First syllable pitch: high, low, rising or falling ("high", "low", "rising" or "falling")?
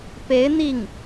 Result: rising